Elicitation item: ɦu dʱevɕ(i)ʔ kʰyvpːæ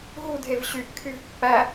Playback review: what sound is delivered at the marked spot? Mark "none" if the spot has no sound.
y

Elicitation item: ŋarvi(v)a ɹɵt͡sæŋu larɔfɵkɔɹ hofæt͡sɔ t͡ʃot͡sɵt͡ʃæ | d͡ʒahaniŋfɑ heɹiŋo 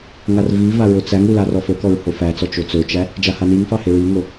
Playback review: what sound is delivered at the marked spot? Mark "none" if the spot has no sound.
v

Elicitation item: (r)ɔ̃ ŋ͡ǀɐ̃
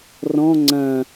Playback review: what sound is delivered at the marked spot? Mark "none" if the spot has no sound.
r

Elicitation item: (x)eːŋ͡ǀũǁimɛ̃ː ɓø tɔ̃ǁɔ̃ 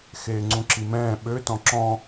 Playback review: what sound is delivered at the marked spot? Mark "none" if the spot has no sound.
x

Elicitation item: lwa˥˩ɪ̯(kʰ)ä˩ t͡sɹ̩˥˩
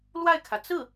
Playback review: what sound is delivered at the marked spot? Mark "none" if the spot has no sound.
kʰ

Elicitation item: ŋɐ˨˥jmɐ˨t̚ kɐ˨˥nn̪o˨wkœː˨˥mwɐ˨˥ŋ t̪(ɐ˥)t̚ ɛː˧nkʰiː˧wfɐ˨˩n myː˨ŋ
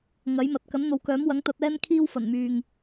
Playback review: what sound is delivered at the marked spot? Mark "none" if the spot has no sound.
ɐ˧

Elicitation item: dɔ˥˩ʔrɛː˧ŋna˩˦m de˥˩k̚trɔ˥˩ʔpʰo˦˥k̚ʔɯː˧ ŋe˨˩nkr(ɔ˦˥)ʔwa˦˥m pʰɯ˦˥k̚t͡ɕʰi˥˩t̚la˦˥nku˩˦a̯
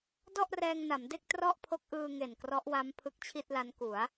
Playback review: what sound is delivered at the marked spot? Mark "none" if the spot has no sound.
ɔ˦˥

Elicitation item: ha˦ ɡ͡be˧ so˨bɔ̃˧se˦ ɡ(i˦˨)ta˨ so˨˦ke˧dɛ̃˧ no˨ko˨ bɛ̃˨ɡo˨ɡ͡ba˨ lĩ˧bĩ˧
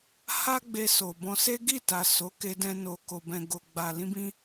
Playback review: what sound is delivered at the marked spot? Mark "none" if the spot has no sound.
i˦˨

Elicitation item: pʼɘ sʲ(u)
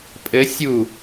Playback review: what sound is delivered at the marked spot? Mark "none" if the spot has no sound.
u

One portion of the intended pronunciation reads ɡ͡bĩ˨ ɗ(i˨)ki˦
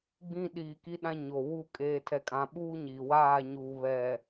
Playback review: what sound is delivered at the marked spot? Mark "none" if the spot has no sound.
iː˨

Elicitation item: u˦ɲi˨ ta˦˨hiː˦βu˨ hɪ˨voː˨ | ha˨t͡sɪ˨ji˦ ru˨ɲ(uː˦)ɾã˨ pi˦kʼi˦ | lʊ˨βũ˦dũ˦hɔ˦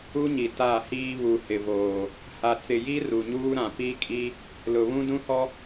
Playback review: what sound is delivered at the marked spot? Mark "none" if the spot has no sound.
uː˦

